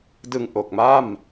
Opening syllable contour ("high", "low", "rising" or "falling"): low